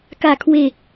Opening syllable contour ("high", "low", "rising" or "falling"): low